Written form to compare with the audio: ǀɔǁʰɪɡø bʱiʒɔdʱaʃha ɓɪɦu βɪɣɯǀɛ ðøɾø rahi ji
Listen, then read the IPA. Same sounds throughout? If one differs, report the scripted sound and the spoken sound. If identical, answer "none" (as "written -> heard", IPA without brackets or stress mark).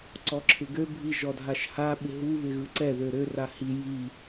none